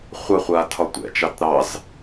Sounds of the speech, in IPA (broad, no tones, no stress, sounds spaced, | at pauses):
χʷ ɑ χʷ aː tʰ ɒ tʷ ɛ̰ t͡ʃ ɑ t ɾ ɑ z